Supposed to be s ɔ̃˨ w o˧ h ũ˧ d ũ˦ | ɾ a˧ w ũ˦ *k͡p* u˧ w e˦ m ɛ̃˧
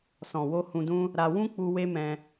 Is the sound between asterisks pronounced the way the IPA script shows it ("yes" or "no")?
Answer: yes